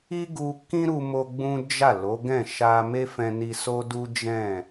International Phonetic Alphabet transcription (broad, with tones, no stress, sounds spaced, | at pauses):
i˦ ɡ u˧ k ĩ˦ ɾ u˧ m o˧ ɡ͡b ũ˦ d͡ʒ a˦˨ l o˨˦ ɡ ɛ̃˦˨ ʃ a˧ m e˦ f ɛ̃˧ n i˧ s o˦ d u˦ d͡ʒ ɛ̃˦˨